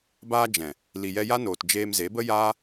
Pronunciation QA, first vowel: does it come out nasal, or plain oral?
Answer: oral